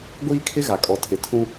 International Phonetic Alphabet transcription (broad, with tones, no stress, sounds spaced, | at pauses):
ɡʷ iː˦ kʰ ɪ˦ ɣ a˨ kʼ ɔ˨ tʰ ɪ˨˦ tʰ ũ˦